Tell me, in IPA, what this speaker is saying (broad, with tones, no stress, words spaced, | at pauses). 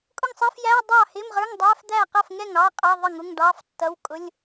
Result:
kʼʊ˥˩ŋsˤəː˧˥˧fjæː˧˥˧ dˤɑ˥˩hɪ˧˥˧mʁə˞˧˥˧ŋ dˤæː˧˥˧fd̪æː˥˩qʌ˥˩fŋɛ˥˩ŋ ɑ˧˥˧qʼɑ˧˥˧ ðˤə˥˩ŋʊ˧˥˧ŋ ɖɑː˧˥˧ftːʌ˧˥˧w kʼʊ˧˥˧lʲ